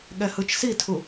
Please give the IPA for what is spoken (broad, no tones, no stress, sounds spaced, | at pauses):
ɠ ɛ h ɯ t͡ʃ s i tʰ u